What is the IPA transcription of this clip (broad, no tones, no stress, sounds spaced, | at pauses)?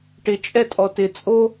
ʈ ɪ t͡ʃʼ ɛ tʼ ɔ t ɪ t͡sʼ o